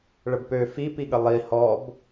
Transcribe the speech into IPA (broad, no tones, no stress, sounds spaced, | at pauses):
ɭ ə b p ø f i p i ɠ ə lˠ i h ɔ b